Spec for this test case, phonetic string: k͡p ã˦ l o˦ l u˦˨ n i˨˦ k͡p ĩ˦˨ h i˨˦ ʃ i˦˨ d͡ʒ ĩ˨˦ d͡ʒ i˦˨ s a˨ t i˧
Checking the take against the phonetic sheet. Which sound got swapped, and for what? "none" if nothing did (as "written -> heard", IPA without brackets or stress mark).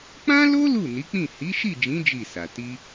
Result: none